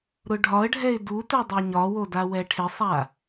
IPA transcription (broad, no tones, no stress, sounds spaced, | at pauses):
ɾ ʊ ɖʱ ɒ ə̯ ɖʱ ɛ ɪ̯ d u t ɛ dˤ o ɲ ɒ w o d a w ɛ ʈʰ ɪ sˤ a